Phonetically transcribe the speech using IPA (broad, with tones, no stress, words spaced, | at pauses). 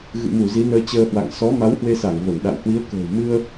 ɣɨ̰˧˨mu˧˩ zi˨˦nəː˧t͡ɕəː˧hwa̰˧˨ŋ sɔ˨˦ma˨˦whwe˧sa˧˩ŋ və˧˩nɗa̰˧˨w hwi˨˦ə̯kə̤ː˨˩w mɨ˧ə̯